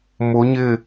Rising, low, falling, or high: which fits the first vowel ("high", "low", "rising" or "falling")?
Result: rising